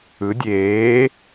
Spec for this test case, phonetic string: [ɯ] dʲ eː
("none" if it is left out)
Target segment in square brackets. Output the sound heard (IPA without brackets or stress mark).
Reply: ɯ